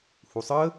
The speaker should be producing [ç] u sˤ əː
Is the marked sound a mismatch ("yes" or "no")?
yes